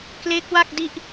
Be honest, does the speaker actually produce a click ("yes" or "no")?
no